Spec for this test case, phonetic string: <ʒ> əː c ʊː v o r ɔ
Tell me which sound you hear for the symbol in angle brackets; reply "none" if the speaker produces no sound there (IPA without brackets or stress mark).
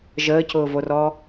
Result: ʒ